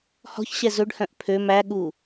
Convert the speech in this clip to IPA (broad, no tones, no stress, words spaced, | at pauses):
hɔ̤çɕɛ zɵɖhœ̃ʔ pʰø mæɠu